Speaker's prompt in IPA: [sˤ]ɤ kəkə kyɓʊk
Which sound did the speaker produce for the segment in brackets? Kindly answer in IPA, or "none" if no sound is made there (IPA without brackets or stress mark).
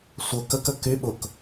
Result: sʷ